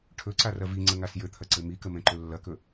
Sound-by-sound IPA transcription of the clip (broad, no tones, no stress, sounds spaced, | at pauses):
ʈʰ ɵ ǀ a r ɐ v i ŋ͡ǀ ə ŋ a s j ɘ t̪ʰ ɐ ǀ ɘ m i k ə m ɛ̃ ǃ ɵ lː ɐ k ɵ